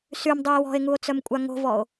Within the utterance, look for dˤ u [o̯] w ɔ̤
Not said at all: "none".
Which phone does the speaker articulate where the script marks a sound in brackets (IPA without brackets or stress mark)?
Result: e̯